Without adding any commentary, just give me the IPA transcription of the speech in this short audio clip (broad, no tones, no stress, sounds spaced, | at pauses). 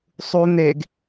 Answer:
sˤ u n̪ e ɡ